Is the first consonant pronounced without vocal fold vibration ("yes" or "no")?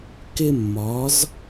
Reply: yes